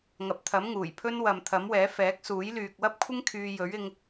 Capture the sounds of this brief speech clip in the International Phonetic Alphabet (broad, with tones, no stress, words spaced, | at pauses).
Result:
ŋɐ˨p̚t̪ʰɐ˨˥m ŋuː˨˩jpʰɵ˥n wɐ˨mt̪ʰɐ˨˥mwɛː˨˥ fɛː˨˥k̚suː˨˥j lyː˨k̚wɐ˥p̚kʷʰɪ˥ŋ kʰyː˧jɵ˨˥ɥ ɪ˧ŋ